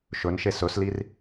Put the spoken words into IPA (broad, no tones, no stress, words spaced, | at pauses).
ʃɵnʃe sɵslir